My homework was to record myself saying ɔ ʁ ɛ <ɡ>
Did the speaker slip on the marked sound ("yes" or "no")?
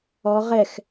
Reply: yes